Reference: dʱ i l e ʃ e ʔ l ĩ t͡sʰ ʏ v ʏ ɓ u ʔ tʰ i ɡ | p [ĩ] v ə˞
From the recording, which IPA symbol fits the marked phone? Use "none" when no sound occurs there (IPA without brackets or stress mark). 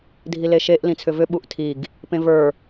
ẽ